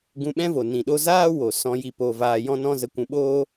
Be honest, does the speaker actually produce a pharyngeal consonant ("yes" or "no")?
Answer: no